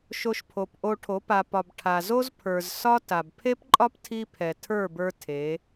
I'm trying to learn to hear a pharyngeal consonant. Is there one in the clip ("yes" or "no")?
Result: no